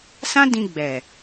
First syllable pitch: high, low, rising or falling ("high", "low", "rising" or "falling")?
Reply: high